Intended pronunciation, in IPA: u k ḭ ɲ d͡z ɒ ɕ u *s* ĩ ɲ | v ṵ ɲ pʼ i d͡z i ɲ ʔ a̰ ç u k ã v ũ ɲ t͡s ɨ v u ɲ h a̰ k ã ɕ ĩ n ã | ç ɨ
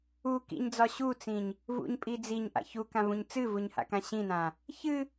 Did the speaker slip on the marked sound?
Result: yes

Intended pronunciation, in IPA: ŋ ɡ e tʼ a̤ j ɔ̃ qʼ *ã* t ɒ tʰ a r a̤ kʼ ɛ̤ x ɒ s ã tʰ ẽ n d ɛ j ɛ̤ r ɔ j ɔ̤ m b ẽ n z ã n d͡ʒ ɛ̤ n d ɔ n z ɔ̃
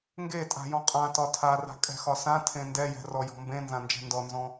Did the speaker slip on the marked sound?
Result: no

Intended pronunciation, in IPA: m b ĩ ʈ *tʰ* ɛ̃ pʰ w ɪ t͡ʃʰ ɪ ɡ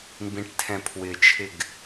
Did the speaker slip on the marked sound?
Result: no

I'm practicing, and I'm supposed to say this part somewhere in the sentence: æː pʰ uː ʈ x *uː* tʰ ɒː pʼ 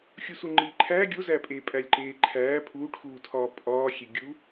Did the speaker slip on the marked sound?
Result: no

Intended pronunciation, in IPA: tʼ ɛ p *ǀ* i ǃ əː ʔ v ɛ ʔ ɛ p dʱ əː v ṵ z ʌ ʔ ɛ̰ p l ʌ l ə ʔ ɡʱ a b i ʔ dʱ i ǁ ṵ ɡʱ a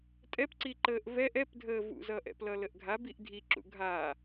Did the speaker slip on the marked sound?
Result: no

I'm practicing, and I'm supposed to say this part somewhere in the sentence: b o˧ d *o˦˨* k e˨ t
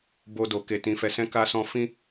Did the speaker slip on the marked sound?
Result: yes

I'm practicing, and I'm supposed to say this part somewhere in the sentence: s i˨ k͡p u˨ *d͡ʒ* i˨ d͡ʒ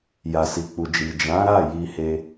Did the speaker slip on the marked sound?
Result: no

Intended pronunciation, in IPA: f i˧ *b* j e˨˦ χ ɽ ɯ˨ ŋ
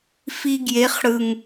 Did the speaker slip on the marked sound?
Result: yes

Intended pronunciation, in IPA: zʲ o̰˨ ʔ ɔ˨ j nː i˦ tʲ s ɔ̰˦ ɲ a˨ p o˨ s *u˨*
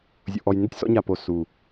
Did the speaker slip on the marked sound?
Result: no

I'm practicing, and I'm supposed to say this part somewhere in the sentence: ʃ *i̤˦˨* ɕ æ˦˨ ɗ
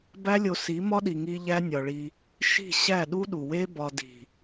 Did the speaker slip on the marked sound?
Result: no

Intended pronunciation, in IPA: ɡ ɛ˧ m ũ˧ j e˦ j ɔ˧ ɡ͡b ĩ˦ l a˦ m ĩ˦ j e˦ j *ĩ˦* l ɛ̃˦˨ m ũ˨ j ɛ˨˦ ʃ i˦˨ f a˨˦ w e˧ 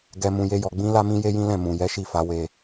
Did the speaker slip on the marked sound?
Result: no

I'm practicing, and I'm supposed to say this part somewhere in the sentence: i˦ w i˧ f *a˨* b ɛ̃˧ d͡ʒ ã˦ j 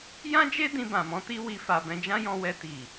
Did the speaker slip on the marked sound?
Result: no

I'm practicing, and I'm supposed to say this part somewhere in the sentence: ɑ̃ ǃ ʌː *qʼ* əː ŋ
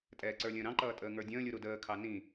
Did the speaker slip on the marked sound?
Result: yes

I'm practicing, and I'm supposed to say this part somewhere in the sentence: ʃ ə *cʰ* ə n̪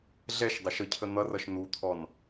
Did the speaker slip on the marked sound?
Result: no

